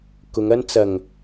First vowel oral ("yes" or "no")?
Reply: yes